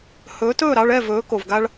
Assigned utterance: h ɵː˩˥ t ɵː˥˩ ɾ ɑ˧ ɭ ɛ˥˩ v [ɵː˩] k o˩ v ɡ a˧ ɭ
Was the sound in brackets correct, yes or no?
no